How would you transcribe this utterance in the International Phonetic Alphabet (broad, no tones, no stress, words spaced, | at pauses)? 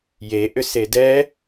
je ʔʏsedɛ